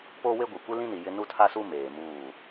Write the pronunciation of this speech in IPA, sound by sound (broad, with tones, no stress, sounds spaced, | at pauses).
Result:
p oː˦ w e˦ ɡʷ i˨ kʷ i˦ l ĩ˦ n i˨ j ɪ˦ n u˦ tʰ a˦ s u˦ m eː˨ m uː˦˨